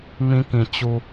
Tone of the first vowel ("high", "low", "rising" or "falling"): high